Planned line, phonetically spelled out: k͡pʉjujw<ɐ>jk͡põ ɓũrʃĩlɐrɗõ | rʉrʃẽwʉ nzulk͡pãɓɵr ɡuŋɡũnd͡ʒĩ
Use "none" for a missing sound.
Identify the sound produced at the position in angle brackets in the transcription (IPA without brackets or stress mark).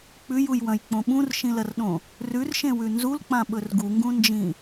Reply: ɐ̃